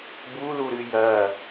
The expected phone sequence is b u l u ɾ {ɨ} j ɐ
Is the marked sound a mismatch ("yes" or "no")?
no